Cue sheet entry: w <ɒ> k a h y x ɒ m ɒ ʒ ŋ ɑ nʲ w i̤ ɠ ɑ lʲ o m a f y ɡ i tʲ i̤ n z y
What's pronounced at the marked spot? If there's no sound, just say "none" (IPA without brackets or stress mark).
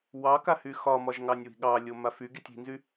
ɑ